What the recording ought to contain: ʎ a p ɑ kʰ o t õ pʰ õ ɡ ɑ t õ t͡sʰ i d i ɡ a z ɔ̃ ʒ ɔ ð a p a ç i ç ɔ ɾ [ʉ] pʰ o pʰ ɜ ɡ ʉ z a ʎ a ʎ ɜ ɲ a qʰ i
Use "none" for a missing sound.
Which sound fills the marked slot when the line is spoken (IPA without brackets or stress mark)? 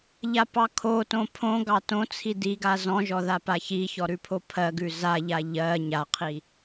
ʉ